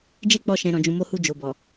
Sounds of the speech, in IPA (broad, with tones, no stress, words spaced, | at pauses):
d͡ʒe˦k͡pɔ˧ʃɛ̃˨ ɾɔ̃˨d͡ʒũ˨mo˧hu˧ d͡ʒo˨bɔ˨